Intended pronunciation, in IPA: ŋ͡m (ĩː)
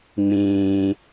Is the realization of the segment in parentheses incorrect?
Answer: no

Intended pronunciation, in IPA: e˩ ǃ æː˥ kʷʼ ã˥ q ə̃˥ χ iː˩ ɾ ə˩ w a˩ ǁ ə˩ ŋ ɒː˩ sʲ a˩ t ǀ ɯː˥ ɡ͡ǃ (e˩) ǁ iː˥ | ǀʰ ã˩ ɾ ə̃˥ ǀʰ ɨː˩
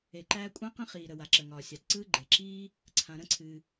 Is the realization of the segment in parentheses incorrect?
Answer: no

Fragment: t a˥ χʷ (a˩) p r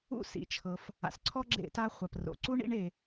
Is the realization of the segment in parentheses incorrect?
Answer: no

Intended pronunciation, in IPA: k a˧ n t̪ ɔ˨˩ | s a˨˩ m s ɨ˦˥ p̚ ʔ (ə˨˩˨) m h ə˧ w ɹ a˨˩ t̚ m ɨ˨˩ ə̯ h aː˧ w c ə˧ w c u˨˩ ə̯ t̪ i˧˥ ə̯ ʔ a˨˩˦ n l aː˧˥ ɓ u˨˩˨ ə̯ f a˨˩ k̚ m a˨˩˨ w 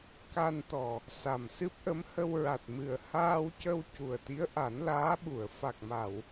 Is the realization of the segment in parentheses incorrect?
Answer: yes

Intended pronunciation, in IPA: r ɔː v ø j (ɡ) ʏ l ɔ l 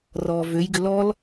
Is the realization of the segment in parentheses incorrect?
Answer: no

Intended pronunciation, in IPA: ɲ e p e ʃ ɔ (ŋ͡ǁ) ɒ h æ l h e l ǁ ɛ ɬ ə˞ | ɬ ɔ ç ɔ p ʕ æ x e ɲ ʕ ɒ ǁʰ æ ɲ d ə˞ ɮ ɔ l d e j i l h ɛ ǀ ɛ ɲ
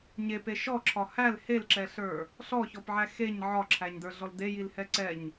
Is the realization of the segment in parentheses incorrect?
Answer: yes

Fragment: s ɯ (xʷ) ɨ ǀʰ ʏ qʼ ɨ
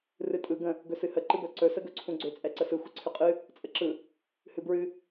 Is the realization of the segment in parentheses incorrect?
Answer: no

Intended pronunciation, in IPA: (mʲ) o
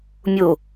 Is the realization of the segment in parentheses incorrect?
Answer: no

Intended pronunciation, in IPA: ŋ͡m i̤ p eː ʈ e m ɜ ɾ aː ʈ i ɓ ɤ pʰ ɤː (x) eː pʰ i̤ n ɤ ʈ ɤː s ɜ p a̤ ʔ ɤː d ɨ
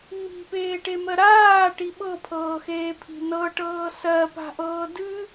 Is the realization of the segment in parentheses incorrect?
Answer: no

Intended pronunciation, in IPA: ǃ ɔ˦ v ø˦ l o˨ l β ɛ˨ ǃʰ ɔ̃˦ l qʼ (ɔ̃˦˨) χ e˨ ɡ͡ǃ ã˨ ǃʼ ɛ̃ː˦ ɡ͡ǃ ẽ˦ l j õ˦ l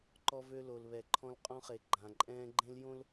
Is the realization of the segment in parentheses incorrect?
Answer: yes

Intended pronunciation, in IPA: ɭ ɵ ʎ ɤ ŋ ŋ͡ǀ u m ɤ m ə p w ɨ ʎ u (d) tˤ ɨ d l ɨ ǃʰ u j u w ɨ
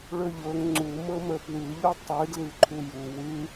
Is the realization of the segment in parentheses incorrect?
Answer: yes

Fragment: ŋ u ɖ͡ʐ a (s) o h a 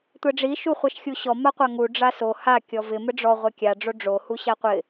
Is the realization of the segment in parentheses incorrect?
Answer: no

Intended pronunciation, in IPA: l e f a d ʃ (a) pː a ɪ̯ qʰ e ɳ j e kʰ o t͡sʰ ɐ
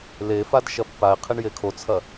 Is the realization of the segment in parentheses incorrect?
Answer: yes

